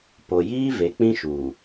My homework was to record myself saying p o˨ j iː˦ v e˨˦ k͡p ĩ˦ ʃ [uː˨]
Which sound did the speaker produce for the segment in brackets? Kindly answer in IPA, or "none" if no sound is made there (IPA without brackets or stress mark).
uː˨